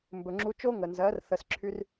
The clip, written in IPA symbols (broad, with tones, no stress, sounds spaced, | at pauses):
m b ɵ˨ ŋ͡ǁ u˧ t͡ʃ o˦ ŋ ə˨ n z ɜ˨˦ r θ ə˧ s ǁʰ y˦ r